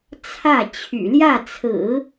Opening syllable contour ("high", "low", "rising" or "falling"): falling